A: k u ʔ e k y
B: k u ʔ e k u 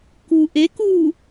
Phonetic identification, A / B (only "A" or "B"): B